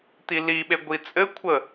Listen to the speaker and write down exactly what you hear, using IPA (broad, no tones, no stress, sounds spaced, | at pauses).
t̪ i l i ɓ e ɡʷ i t͡sʼ ɘ kʷʰ ə